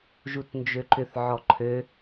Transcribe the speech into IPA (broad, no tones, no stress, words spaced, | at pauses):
ʒutnd͡ʒøǃʏθ ʕɔǃʰø